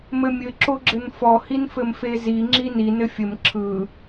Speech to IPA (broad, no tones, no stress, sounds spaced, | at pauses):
m ɘ mʲ ɘ ǁ o ɡ͡ǁ ɘ n f ɔ h i n f ɘ m f e z i ŋ͡ǁ i n i n ɘ fʲ ɘ m ǁʰ ɯ